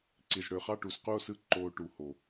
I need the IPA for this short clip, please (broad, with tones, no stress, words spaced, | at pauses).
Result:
ǀi˨zɽø˨ χɑ˦˨ʈu˨squ˦˨o̯sɯ˦ ǃo˨ ʈu˨ho˨